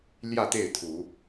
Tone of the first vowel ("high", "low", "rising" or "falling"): falling